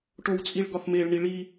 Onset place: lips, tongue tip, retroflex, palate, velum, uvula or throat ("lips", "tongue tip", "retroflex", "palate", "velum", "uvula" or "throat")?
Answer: retroflex